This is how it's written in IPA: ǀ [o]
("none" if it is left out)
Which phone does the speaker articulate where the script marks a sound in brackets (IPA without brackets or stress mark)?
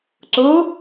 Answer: o